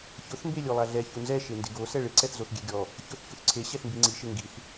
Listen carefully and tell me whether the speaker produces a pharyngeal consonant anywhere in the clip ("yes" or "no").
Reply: no